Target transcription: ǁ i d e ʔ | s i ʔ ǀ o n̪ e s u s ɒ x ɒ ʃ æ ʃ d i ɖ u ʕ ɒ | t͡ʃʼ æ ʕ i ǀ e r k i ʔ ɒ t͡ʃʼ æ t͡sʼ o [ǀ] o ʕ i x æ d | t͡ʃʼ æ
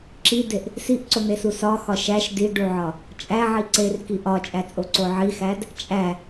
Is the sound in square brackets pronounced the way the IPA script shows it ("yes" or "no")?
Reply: yes